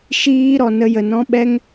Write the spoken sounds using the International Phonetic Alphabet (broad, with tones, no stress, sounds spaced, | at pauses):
ʃ iː˦ ɾ ɔ˧ n ə˦ j ə˧ n ɔ̃˦ ɓ ɛ˦ ŋ